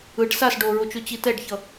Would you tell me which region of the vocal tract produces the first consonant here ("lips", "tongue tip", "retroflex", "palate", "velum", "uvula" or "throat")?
retroflex